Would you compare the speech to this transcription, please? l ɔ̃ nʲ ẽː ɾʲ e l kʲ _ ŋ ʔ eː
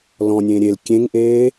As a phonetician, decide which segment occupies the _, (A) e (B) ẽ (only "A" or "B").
B